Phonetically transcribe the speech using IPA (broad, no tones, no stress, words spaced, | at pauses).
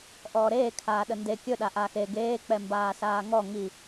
ʔɔːɾeːkʰaːɗə nde kʲɵɗaʔaːx e ɡeːk͡pɛ mbaːsaːŋɔ ŋi